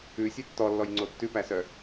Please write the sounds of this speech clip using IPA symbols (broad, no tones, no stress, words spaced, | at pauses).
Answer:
ʉsʲe tːɔlːɔjŋ͡ǀo tːʉpæsœ